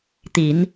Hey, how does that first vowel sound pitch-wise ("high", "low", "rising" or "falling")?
rising